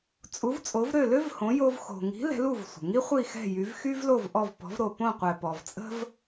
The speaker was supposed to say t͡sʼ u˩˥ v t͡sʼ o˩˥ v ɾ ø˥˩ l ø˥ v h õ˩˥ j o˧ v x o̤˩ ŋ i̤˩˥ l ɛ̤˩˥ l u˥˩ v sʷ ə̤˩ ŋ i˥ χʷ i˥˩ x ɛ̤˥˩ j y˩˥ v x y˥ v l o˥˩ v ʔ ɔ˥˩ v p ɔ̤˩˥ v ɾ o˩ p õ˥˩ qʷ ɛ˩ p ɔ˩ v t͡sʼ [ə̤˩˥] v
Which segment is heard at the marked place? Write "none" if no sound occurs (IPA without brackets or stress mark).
ə̤˥